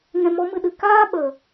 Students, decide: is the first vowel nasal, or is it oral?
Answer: nasal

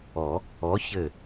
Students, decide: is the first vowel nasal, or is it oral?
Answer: oral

